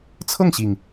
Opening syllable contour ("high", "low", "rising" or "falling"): falling